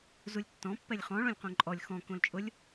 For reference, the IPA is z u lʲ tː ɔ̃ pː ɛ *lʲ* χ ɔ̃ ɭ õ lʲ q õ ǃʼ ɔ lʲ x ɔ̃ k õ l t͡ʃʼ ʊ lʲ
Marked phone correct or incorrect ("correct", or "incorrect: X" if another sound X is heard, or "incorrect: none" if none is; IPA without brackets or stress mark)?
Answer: correct